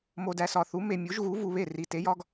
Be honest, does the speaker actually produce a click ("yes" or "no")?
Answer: no